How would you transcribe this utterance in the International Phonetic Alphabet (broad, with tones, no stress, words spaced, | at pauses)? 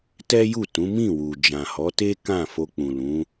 tɛ˦ju˦˨tũ˨˦ mĩ˦˨wu˨ d͡ʒã˨hɔ˨˦te˦ kã˦˨fo˧k͡pũ˨ lũ˨˦